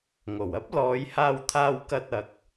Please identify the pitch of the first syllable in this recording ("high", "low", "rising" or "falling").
low